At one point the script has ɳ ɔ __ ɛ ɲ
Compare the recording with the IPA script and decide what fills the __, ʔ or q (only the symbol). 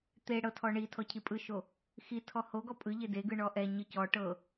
ʔ